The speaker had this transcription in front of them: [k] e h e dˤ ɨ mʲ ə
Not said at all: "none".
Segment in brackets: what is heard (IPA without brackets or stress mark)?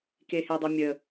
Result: k